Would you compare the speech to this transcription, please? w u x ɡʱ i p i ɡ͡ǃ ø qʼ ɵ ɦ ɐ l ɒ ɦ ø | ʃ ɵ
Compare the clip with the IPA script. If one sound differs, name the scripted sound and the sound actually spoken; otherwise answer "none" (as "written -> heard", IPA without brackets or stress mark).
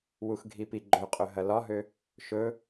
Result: none